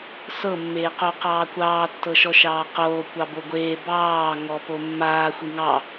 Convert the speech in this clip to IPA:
s ɤ mː eː q o q ɑː kʷ ɑː tː ɤ ʃ ɔ ʃ ɑː q oː kʷ ɑ b o ɡʷ eː b ɑː ŋ ɔ p o mː aː xʷ i ŋ ɑ

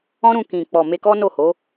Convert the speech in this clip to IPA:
ɔ̃˦ ɾ ũ˧ k ĩ˨ k͡p ɔ˨ m e˧ k ɔ˦ n o˦˨ h o˨˦

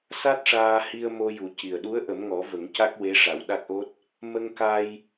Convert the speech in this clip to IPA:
s a˦˥ t̚ ʂ aː˧ h i˧ ə̯ m o˧ j u˨˩ c i˨˩ ə̯ ɗ u˧˥ ə̯ ʔ ə˨˩˦ m ŋ ɔ˨˩˦ v ə˨˩˦ ŋ c a˦˥ k̚ w e˧˥ ʂ a˨˩˦ w ɗ a˦˥ k̚ ʔ o˦˥ t̚ | m ə˧ ŋ k a˧ j

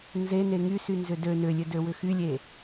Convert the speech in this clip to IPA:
n z e n e ŋ y s y n z ʏ d ø n ʏ lʲ ø d ø w ʏ x y lʲ e

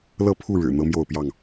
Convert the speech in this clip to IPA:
l ɤ˥˨ pʰ u˥˨ ɻ ɻ̩˨˩ n̪ ɤ˦ m j o˥˨ ʊ̯ p j ɑ˥˨ ŋ

